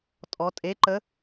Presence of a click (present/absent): present